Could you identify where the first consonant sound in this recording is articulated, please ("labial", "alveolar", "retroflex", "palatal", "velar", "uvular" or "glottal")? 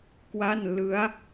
velar